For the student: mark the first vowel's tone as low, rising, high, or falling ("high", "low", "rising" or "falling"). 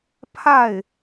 falling